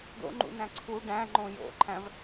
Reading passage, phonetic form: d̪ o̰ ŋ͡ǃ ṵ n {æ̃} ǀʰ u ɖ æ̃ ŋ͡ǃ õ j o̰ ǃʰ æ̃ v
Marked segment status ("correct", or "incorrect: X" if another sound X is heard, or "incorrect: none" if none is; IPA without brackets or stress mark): correct